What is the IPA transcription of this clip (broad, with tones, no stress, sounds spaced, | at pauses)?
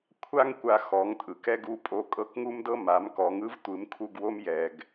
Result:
kʷʰ a˥ ŋ kʷ a˧ x ɔ˩˧ ŋ tʼ ɯ˩ k ɛ˥ ɡ u˧˥ pʼ o˧ kʼ ɤ˧˥ k ŋ u˥ m d ɤ˥ m a˩˧ m k ɔ˩˧ ŋ ɯ˥ v tʷ ɯ˩˧ m kʰ u˧ ɡ w o˥ m j ɛ˩ ɡ